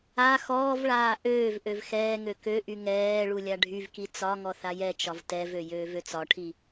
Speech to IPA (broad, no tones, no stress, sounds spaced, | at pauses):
a x ɔː v ɭ aː ʔ øː v ʔ ø v x ɛː ŋ ø k ø ʔ y ŋ ɛː ɭ u lʲ a ɖʱ y v k i t͡s ɒ ŋ ɔ θ a j ɛ t͡ʃ ɒ v t ɛ v ø j øː v ø t͡s ɒ ʈʰ i